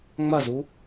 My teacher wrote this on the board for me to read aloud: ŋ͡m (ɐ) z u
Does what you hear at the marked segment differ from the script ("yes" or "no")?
no